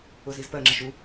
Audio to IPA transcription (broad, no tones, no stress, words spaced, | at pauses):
ʊzizpɜŋ͡ǁəʃ u